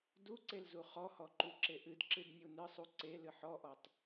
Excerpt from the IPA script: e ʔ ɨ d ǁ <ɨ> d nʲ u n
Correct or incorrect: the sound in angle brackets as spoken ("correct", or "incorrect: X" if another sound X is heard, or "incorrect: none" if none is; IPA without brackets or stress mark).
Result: correct